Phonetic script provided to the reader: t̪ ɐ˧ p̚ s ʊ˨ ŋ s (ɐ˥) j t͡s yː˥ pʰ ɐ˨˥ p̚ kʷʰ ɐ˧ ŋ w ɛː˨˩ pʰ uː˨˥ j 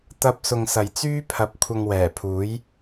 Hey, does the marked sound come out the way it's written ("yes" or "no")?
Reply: no